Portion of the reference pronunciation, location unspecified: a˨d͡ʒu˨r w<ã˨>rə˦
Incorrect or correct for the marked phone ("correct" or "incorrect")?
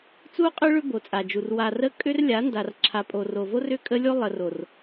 incorrect